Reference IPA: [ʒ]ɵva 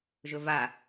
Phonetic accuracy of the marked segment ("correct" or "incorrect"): correct